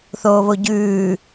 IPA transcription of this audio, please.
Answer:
θ oː β o ɟ ʉː

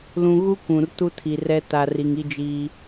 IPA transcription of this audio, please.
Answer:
l ũ˨ ɣ u˦ kʷ ũ˨ r t u˦ tʰ i˨ r ɛ˦ t a˨ r i˨ ŋ i˦ d͡ʒ iː˦

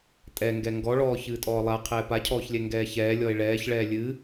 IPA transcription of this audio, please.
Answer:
tʼ ɛ ŋ ɡ ɛ ŋ ɡ ɔ ɭ ɔː ç ɨː tʼ ɔː lˠ a qʰ ɛː p a cʰ ɔː ç lʲ ɛ ŋ ɡ ɛː ç ɛː lʲ ɔ e̯ ɭ ɛː ç ɭ ɛː lʲ ɨ

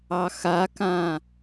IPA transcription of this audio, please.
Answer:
ɑ x a k ã

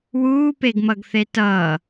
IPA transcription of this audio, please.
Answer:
w uː p e ɡ m ʌ ɡ θ e t ʌː

